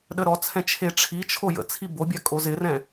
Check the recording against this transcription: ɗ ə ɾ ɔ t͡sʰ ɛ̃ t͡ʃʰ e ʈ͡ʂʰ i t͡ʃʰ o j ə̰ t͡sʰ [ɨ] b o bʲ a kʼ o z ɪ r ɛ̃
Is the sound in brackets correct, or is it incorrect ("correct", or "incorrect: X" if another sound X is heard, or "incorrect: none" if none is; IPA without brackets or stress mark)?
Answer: incorrect: i